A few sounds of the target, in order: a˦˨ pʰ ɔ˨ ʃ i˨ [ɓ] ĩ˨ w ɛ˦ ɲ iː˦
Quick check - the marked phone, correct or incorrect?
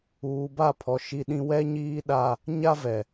incorrect